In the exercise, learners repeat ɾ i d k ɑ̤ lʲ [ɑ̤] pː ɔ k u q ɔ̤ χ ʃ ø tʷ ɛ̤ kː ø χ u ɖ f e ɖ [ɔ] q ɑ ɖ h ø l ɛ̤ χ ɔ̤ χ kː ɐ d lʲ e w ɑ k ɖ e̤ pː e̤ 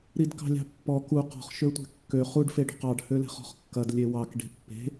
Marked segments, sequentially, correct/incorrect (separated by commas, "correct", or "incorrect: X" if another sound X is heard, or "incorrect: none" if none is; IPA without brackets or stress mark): correct, incorrect: ɔ̤